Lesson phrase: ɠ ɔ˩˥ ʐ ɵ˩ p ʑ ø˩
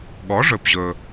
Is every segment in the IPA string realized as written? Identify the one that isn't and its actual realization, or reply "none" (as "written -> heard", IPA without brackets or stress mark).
ø˩ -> ɵ˩